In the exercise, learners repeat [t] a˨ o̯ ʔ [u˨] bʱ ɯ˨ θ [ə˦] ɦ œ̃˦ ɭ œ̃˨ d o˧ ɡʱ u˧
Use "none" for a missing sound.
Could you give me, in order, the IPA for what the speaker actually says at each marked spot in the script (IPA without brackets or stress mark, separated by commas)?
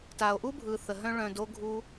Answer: t, u˦, ə˨